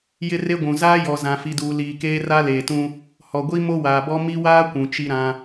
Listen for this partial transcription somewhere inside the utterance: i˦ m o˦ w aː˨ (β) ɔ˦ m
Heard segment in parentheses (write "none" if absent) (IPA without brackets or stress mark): b